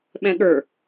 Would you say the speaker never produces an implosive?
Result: no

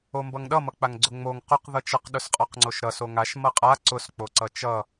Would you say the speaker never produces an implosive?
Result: no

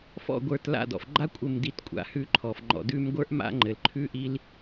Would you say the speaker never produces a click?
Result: no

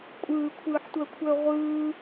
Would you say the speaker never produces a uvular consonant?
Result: no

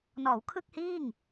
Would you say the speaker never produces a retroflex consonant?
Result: yes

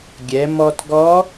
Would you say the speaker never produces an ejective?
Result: yes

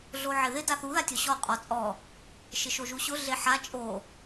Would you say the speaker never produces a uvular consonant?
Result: no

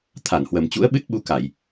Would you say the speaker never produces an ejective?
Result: yes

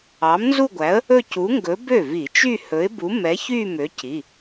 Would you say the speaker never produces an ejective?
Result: yes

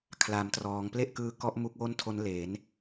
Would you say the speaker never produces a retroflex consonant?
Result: yes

